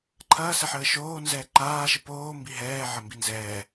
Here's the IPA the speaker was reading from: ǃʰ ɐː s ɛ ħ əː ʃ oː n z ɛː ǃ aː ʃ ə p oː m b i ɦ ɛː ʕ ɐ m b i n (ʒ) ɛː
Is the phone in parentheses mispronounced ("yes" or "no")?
yes